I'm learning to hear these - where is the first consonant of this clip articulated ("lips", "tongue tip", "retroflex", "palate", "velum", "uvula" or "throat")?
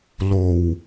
tongue tip